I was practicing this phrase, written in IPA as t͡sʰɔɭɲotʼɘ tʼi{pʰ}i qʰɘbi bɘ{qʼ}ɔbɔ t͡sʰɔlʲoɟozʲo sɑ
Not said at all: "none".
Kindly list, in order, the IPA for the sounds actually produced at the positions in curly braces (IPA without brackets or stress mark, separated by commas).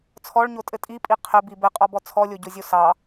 pʼ, qʼ